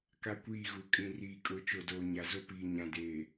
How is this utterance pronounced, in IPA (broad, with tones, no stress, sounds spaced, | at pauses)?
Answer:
k a˦ kʷ iː˦˨ ɣ u˨˦ kʼ ĩ˨ r iː˨ kʼ ʊ˨˦ t͡ʃ o˨ d oː˨ ɲ a˨ z o˦ p iː˨ ɲ ã˨ d eː˨